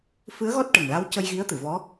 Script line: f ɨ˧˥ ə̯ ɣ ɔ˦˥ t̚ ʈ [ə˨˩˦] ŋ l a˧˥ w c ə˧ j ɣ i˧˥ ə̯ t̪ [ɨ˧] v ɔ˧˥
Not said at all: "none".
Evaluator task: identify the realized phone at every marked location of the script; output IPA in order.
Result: ə˨˩, ɨ˨˩˨

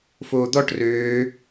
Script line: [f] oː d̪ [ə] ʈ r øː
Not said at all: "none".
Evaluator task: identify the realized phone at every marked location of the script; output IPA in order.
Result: f, ɔ

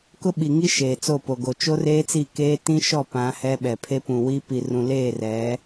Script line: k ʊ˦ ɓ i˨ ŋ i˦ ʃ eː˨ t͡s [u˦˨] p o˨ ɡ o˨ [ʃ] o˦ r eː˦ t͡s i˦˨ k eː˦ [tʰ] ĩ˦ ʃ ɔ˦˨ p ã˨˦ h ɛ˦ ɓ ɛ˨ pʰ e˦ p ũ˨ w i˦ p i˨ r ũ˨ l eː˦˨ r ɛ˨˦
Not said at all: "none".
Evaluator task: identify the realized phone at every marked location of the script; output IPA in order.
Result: o˦˨, t͡ʃ, t

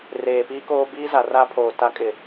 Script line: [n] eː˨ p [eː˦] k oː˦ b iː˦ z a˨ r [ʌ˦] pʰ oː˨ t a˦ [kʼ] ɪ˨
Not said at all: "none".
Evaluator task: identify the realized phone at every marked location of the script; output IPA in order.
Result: r, iː˦, a˦, kʼ

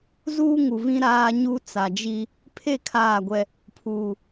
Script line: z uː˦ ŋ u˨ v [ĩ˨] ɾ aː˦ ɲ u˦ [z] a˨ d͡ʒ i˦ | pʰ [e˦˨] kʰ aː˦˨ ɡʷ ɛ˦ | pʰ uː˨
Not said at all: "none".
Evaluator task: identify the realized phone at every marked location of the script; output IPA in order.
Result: ĩ˦, t͡s, e˦˨

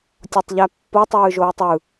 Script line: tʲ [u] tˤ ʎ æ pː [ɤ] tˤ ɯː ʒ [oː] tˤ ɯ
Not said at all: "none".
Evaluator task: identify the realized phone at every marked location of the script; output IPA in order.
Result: o, o, oː

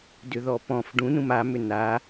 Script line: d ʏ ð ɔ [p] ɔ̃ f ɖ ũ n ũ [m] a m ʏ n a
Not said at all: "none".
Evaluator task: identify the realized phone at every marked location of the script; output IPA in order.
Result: p, m

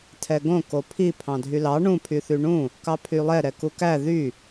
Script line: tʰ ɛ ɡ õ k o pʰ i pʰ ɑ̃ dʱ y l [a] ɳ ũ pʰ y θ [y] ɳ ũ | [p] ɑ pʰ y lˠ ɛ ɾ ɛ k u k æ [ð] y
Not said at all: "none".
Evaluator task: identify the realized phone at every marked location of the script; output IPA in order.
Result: ɑ, y, k, ð

